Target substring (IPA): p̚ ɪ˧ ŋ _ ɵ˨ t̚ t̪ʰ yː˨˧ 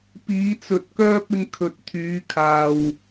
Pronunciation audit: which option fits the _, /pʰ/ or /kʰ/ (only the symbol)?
kʰ